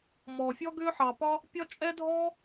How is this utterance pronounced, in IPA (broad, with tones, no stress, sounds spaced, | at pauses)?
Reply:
m ɔː˩ fʲ ɔ˥ ɡ ʏː˥ ħ ɑ˩ p ɒ˥ | pʲ ɒ˥ t͡ʃʼ ɛ˥ dʱ ɔː˥